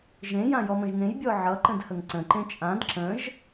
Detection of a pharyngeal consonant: present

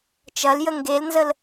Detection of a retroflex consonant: absent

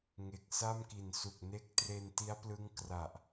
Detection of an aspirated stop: absent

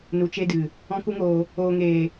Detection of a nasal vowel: present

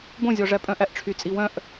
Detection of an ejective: present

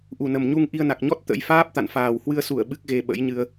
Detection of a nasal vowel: absent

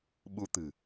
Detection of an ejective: absent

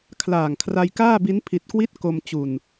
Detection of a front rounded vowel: absent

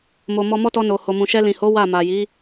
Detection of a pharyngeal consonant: absent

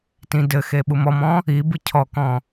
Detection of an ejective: absent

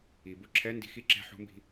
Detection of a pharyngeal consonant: present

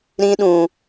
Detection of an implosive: present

